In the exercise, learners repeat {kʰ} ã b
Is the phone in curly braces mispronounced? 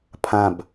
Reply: yes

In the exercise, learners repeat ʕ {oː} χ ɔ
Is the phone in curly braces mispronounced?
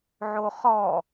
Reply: yes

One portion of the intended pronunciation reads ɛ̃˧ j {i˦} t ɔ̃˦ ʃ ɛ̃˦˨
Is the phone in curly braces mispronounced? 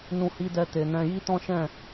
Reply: no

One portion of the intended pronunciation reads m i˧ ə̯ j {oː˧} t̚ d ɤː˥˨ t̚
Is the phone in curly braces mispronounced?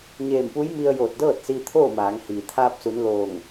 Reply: yes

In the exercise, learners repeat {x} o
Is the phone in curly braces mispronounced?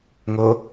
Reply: yes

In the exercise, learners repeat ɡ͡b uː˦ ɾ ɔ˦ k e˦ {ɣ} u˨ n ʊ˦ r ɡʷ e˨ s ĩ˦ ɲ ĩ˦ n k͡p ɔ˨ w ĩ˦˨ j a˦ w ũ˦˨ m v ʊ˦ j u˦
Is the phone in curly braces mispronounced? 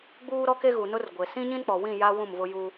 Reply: no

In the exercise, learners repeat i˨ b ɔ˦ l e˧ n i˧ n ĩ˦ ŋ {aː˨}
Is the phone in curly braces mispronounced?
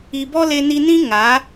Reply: yes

